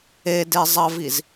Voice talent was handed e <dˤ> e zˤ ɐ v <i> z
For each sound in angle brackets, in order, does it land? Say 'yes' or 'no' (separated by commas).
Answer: no, yes